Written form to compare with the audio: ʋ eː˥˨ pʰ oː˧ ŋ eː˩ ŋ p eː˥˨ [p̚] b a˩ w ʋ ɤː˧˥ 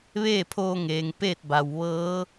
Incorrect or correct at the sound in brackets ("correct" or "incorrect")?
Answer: incorrect